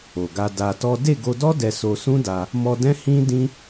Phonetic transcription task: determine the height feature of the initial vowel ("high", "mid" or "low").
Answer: mid